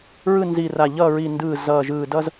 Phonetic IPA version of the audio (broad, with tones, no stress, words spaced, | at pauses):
ɹɯ˦˨nzi˨˩ra˨˩ ʎʌː˦˨ɹi˨˩ ndɯː˨˩ zʌː˨˩ʒɯː˨˩dʌ˦z